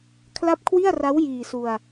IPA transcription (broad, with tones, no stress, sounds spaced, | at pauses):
kʰ l a˦˥ p̚ kʰ w i˥˩ a̯ r a˦˥ w j iː˧ s u˧ a̯